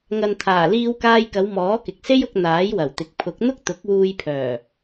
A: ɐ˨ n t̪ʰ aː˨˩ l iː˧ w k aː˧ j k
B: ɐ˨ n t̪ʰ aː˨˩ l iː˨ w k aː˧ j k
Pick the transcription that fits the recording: A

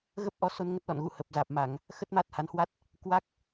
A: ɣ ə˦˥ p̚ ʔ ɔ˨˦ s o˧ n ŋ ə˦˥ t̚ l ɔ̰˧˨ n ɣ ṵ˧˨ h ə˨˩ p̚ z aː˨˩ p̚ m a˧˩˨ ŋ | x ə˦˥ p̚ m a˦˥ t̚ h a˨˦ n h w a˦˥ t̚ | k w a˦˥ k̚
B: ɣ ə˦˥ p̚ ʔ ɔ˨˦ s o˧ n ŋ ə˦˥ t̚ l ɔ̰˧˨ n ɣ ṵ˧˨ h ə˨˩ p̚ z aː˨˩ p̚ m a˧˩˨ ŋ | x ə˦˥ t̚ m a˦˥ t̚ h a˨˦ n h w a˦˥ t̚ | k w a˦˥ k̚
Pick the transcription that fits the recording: B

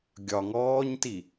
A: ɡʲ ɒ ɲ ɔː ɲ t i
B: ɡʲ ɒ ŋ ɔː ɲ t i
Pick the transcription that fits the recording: B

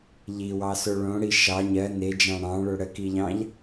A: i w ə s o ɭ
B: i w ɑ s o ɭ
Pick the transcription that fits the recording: B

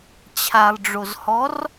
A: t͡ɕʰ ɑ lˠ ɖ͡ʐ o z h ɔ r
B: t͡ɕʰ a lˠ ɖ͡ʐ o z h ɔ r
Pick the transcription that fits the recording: B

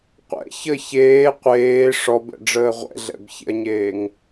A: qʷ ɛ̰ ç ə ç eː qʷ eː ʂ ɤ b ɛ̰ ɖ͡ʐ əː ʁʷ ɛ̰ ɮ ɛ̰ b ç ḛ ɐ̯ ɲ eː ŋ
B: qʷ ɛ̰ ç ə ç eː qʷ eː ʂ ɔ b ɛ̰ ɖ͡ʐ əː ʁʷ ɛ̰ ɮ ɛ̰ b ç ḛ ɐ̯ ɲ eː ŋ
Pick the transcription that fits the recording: B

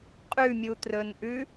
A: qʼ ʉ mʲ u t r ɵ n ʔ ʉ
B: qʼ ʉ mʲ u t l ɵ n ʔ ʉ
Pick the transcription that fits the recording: A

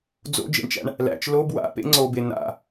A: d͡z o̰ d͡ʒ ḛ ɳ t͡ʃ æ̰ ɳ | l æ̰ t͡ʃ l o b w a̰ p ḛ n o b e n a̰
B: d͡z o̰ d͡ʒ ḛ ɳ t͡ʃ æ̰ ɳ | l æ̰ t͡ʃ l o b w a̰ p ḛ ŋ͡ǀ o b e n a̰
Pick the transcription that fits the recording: B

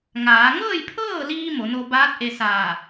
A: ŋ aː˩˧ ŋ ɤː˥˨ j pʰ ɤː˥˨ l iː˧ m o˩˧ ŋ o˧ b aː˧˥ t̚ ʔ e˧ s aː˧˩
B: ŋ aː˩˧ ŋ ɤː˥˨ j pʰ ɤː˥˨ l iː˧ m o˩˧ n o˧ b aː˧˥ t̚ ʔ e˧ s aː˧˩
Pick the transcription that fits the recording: B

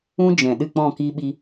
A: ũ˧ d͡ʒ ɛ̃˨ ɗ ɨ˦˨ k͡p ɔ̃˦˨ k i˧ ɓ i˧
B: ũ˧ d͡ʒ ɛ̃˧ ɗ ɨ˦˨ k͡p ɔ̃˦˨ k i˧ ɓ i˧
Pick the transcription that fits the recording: A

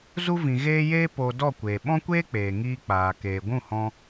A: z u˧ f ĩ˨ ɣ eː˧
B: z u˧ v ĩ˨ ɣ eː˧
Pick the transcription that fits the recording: B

